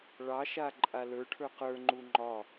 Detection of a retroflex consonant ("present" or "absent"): present